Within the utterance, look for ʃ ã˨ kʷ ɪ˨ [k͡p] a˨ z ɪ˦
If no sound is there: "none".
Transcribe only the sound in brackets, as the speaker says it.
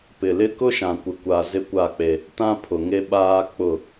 kʷ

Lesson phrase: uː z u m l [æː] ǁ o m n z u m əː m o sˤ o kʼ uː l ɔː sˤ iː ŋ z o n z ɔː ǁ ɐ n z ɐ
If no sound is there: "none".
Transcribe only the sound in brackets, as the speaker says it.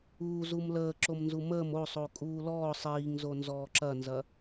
əː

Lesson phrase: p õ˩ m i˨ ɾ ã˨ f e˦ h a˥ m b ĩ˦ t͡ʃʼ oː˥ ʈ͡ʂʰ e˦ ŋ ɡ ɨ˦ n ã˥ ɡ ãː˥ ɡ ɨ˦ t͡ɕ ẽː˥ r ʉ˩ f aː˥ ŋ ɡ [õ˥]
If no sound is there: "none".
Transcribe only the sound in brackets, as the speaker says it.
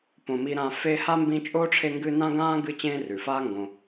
õ˨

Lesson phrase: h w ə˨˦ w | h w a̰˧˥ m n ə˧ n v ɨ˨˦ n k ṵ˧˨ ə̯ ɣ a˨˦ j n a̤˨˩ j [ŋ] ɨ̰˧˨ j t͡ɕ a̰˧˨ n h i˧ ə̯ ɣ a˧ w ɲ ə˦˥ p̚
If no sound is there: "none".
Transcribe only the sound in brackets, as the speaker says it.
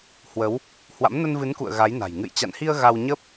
ŋ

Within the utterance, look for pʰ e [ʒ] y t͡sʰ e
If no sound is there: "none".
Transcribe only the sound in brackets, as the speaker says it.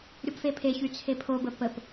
ç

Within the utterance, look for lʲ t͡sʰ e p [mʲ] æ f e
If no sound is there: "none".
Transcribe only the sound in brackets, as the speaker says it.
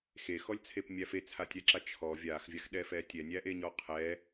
mʲ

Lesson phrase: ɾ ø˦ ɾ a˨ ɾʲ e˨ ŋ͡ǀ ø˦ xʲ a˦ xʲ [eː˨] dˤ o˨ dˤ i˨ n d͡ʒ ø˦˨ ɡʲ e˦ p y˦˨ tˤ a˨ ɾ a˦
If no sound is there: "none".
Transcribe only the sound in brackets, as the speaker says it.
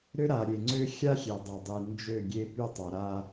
e˨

